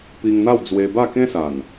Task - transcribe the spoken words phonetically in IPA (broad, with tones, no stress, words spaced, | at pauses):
pi˧ŋn̪a˥˧wd͡zwe˧ba˥˧ kẽ˦sa˨˩n